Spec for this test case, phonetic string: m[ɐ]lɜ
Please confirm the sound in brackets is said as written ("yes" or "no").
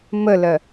no